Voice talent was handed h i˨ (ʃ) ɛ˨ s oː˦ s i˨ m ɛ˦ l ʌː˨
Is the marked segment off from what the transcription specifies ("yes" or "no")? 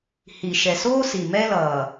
no